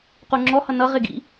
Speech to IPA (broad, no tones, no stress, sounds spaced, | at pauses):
q u ŋ͡ǁ ɔ h ʌ n ʌ ʁ ɪ ɡ ḭ